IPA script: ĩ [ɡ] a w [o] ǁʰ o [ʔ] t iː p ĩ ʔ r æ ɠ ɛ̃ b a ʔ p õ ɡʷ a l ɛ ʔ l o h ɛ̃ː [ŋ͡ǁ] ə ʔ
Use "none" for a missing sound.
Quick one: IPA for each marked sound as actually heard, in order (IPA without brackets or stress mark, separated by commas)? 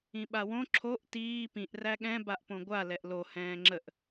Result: ɓ, õ, ʔ, ŋ͡ǁ